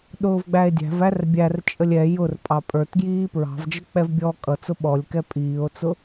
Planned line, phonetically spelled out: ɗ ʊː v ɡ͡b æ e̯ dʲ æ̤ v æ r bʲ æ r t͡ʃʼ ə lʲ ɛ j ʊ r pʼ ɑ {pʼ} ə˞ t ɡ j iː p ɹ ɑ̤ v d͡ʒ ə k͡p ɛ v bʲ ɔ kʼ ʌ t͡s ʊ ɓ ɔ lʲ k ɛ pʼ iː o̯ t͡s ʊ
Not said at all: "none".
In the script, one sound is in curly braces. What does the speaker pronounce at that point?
pʼ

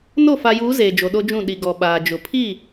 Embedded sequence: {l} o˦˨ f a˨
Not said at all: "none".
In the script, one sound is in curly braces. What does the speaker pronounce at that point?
n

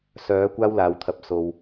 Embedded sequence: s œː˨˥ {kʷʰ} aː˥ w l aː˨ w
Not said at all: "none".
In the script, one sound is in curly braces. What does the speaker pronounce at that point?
kʷ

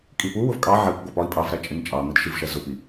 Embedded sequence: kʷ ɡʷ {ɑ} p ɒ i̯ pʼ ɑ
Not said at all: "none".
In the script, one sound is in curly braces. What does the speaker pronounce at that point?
ɑ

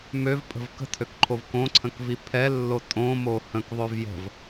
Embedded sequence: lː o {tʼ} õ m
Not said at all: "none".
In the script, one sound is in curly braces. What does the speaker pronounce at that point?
tʼ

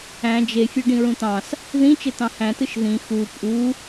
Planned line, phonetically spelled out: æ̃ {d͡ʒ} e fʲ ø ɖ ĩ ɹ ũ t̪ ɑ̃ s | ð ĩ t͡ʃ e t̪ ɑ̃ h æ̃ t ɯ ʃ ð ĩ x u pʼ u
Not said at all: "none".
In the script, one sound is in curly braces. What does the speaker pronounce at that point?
d͡ʒ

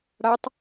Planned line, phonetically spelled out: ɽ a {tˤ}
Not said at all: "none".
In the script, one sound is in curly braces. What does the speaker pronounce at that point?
tˤ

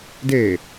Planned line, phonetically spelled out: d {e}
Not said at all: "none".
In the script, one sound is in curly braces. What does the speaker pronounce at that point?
e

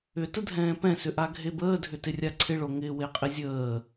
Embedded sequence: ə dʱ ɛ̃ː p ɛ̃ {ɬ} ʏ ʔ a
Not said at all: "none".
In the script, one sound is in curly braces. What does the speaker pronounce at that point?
s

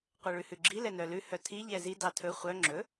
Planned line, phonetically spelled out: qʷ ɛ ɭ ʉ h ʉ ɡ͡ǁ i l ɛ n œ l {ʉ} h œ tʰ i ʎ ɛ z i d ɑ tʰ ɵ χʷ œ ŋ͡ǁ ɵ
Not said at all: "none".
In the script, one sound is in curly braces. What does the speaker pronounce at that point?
ʉ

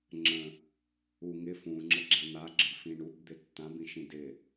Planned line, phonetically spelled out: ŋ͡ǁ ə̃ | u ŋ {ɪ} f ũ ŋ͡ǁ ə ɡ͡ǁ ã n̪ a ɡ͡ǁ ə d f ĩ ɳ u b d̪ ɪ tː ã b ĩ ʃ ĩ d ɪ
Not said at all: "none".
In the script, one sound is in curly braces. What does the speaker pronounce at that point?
ɪ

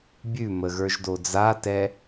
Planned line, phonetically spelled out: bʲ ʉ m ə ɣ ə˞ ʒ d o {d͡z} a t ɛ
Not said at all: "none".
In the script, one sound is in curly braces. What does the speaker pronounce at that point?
d͡z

